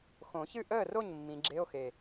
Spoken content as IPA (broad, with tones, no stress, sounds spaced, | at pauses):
x õ˨˩˦ ç ɨ˥˩ ʔ əː˥˩ r o˥˩ ɲ mː ĩ˨˦ ɡ͡ǁ e˧˥˧ o̯ x e˨˩